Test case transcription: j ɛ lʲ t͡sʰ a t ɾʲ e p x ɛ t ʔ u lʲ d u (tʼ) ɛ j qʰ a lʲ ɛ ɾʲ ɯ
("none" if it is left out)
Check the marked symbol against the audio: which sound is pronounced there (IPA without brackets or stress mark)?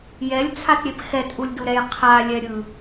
ɾ